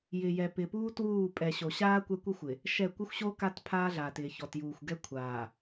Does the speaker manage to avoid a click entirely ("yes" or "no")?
yes